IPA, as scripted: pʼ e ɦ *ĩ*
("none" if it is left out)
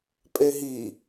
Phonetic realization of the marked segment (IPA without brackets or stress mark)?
i